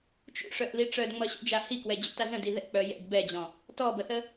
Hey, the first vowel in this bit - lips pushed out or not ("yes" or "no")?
yes